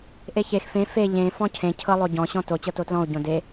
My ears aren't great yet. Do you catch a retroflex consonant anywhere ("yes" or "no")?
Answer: no